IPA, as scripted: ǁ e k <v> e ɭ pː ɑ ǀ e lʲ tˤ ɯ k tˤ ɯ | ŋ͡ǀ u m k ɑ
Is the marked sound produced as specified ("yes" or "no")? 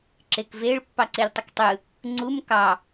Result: yes